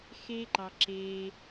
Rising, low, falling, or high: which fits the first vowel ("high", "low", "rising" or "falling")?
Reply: high